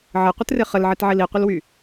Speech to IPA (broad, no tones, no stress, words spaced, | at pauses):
ʕəqʷɪtrɪ χəlʕitʕil iqʷɪlwy